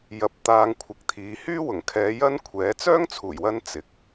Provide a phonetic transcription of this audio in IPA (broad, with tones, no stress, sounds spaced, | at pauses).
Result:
j ɐ˨ p̚ t̪ aː˧ ŋ kʷʰ ɪ˨˥ k̚ t̪ʰ iː˨ h yː˥ w ʊ˨˩ ŋ kʰ ɛː˨˧ j ɐ˥ n kʷʰ ɛː˨˥ t͡s œː˥ ŋ t͡sʰ uː˨˩ j w ɐ˧ n t͡s ɪ˨ k̚